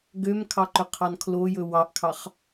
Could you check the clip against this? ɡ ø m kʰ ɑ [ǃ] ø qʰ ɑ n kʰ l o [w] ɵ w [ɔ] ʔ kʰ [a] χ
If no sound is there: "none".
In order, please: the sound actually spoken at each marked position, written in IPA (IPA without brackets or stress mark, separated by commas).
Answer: ǃ, j, ɑ, ɑ